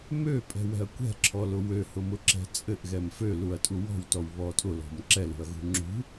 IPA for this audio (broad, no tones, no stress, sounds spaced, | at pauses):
m ø pʼ ɛ̤ w ɛ̤ ɐ̯ kʷ ɛ̤ ǁʰ ɔ l ʊ w ø h ʊ m ʊ ǁ ɛ̤ t͡sʼ ɘ ʔ ɣ ɛ m f ø l u ɐ̯ tʼ u w ɔ̤ w t ɔ w β ɔ tʼ ʊ l ɔ̤ m ǁ ɛ l ṳ ɐ̯ ɣ ṳ ŋ͡ǁ ṳ